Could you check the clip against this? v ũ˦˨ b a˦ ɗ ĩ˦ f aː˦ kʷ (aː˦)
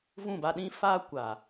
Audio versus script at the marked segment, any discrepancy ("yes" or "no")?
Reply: yes